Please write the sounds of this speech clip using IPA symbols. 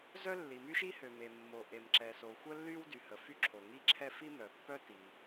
zœ˥ lːi˩my˥ʃi˥hø˩ me˩mːo˩ ʔe˩mǁɛ˩so˩ xʷə˥lːy˥w dy˩hə˩fy˥ǁʰo˩ ŋi˥ǁʰɛ˥ fi˥mœ˩pːœ˥ ti˩

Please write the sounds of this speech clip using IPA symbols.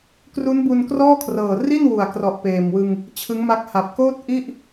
kru˦˥nbu˧nkrɔː˥˩kʰrɤː˨˩ ri˥˩n wu˨˩a̯krɔ˨˩ʔ peː˨˩mwɯ˧ŋ | t͡ɕʰɯ˦˥ŋma˦˥k̚ ha˨˩p̚koː˥˩t̚ ʔi˥˩ʔ

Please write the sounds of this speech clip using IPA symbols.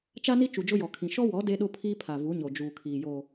t͡ʃa˦ni˦ t͡ʃu˨d͡ʒʊ˦jɔ˨kʰĩ˨ ʃɔ˦wɔ˨˦ de˦ɗʊ˦ pʰiː˦pʰa˨vu˨˦ɲo˨ d͡ʒuː˨kʰiː˨jo˨

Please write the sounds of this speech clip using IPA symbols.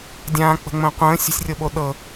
dʲãːk͡pə̤ŋ͡mə̃ː qʷə̃ː sʲə̤sʲrʲɤɓo ɗɤ

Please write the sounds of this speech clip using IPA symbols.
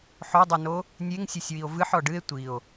ħodˤɨno | nʲeŋsʲusʲwio̯ vɨħ ɔɖɨe̯ tʷio̯

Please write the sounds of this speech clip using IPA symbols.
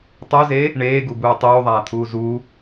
tˤuze | ɳeːɡubuː tˤuːðˤaːt̪ʰuː zu

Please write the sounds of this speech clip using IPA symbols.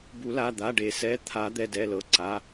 bu˨˩˦la˩˧˩d̪a˩˧˩ ɖe˨˩˦ sɛ˩˧˩t̪ʰa˨˩˦ d̪ɛ˩˧˩dɛ˩˧˩lɤ˩˧˩ ǀa˩˧˩

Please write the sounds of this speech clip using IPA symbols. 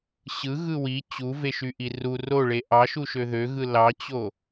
ɕɯɣɯ wi t͡ɕuveʃyʔi ru roɭe ʔɑʃuʃø ðøɣɯ lɑt͡ɕo

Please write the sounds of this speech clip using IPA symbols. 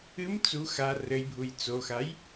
ɨm t͡su xa rɘjbʱuj t͡soxaj

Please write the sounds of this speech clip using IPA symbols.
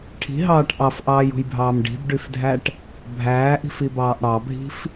ʈʰi̤ɦɑːʈ ʔɑfʔɑːjṳjbʱɑːm ɖi̤bɖyfdʱæʈ | bʱæːʔi̤fibɑːʔ ɽɑbʱi̤f

